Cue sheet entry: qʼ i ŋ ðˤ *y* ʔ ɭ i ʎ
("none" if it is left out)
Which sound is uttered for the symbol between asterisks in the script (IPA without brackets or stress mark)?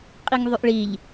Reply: y